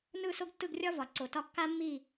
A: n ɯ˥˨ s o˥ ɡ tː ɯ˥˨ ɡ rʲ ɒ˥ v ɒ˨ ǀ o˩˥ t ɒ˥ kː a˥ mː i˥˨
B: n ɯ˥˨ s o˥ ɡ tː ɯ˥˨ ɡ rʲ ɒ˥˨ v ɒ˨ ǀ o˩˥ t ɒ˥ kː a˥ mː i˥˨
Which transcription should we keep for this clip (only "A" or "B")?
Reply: A